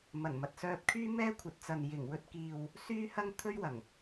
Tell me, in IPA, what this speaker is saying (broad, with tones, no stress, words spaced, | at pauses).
mɐ˨˩nmɐ˨t̚sœː˧p̚kʰyː˥ mɛː˥kʷʰɐ˨˥t̚t͡sɐ˨n jɪ˨˩ŋwɵ˧t̚kiː˨w | syː˥hɐ˥ŋ t̪ʰɵ˥ɥwɐ˨˩ŋ